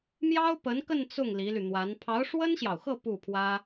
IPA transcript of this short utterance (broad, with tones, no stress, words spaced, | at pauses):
mjɑ˥ʊ̯pə˧˥nkə˥˧n t͡sʊ˥˩ŋ li˧˥ly˧ n̪wa˧˥n pʰɑ˧˥ʊ̯ʂwə˥nɕjɑ˨ʊ̯xɤ˥˧ pu˥˩pʰwä˥